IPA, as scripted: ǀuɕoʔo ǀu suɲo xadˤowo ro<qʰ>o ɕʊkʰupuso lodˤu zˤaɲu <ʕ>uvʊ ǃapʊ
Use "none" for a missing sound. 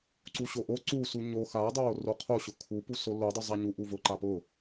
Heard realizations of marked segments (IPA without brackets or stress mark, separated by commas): qʰ, ʔ